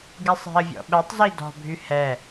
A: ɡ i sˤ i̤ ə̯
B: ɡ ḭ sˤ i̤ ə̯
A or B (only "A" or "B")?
A